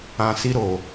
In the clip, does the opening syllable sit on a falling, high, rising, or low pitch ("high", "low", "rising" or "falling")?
low